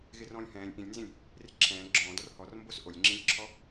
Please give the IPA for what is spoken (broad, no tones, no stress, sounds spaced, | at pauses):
ɣ ɪ r ɔ̃ː lʲ h ɛ̃ː lʲ ʔ ĩ lʲ n z ĩ lʲ | r ɪ ǁʰ ɛ̃ː ɡ͡ǁ ɔ̃ː d ɔ r h ɔ r m b o s ʔ o lʲ ŋ͡ǁ ĩ lʲ ǁʰ ɔ